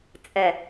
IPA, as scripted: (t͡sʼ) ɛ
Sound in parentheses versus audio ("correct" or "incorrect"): correct